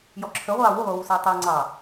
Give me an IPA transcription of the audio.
j ɔ ǁʰ ə ʁʷ ɑː w u ʁʷ ʌ w u s ʌː tˤ ɜ ŋ͡ǀ ɑ

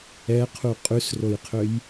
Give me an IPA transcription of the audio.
ɛ qʰ u qʼ ʉ s r o j qʰ ø j

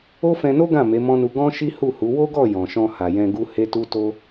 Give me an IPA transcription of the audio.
o˦ f ɛ̃˧ n o˦ ɡ ã˦˨ m e˨˦ m ɔ̃˦ n u˧ ɡ ɔ̃˦ ʃ i˦ h u˦˨ h u˨˦ w o˦ ɡ ɔ˦˨ j ɔ̃˨ ʃ ɔ̃˧ h a˨ j ɛ̃˧ ɡ u˦ h e˦ t u˦ t o˦

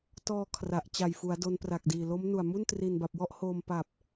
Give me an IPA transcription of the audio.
t ɔː˧ kʰ r a˨˩ ʔ t͡ɕ a˨˩ j f u˩˦ a̯ d o˦˥ n p r a˨˩ k̚ d iː˨˩ l o˦˥ m n u˨˩ a̯ m u˥˩ n t r i˨˩ n b a˨˩ p̚ w ɔ˥˩ ʔ h oː˧ m p a˨˩ p̚

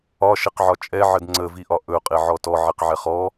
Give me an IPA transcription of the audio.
ɒ ʃ e q ʕ ɒ t͡ʃʼ ɛ ʕ ə d ŋ͡ǀ ə v i ʔ ɒ ʔ ɵ qʼ e ʕ ɔ t ɔ ʕ i q ʕ ɛ χ ɔ

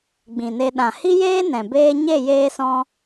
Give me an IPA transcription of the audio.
ɡ͡b ĩ˨ n e˧ ɗ ã˨ h i˦ j eː˦ n ɛ̃˨ b eː˦ ɲ e˦˨ j eː˧ s ɔ̃˧

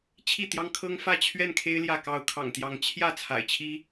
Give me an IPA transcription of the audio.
t͡ɕʰ i˥˨ t̪ j ɑ˦ ŋ kʰ ɤ˦ ŋ f ä˥˨ t͡ɕʰ ɥ ɛ˥˨ n kʰ e˦ ɪ̯ l j ä˥˨ k ɑ˥˨ ʊ̯ kʰ ɑ̰˨˩ ŋ t̪ j ɑ˨˦ ŋ t͡ɕʰ j ä˥˨ t͡sʰ a̰˨˩ ɪ̯ t͡ɕʰ i˦

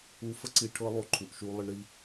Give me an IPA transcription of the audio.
u˧˥ f ə˥ ǀ i˧ ʈʰ ɤ˥ lˠ o˧˥ ǃʰ u˩ ʔ ʃ u˧ lˠ ə˧ ɳ ɾ i˧

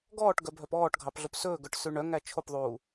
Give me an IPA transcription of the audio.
ɡ ɔː ʈ ɡ œ bʱ œ p ɔː ʈ ɡʱ ɑ p ɮ o p s ɵː ɡ œ ʈ s ʉ ɳ œ ŋ æ t͡ʃʰ o p ðˤ uː

